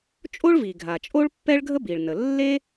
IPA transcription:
t͡ʃʼ o˥ ɭ v i˩ ɡʱ a˩ t͡ʃʼ o˥ ɭ pː ɛ˥ ɭ ɡʱ ə˥ b i˩ ɭ n ə˩ lː e˥

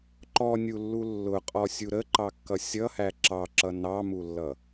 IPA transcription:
ǃ ɔ nʲ u lː u lː ʊ qʼ ɔ sʲ u ɾ ə ǃ ɑ kː ʌ sʲ ʌ h æ ǁ ɑ ǁ ʌ n ɑ m u lː ʌ

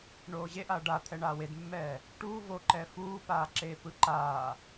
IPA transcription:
ɳ oː ʑ e ʔ a ɖ a t̪ʰ ɛ ɳ aː w e d mː ɛː | ʈ uː v o ǃ ɛ f uː p aː ǁ eː p ɯ ǃ aː

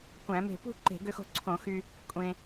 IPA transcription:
kʷ æ̃˧˩˧ m e̤˧˩ p ṳ˥˧ ǃ e̤˧˩˧ ɡ ø˧ x o̤˧ ǀʰ õ˧˩˧ x y˧ | kʷʼ ẽ˧

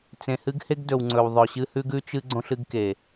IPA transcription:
t͡s ẽ˨ h ɨ˦ ɡ h e˦ ɡ d ɵ˨ w ŋ͡ǀ ɵ˨ w ðˤ ɵ˨ ɕ ɨ˦ h ʉ˦ ɡ ʉ˦ t͡ʃ ɨ˦ ɡ͡ǀ õ˦ ɬ ɨ˦ ɡ k e˨

